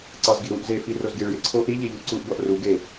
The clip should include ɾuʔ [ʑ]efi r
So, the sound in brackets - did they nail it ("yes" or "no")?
no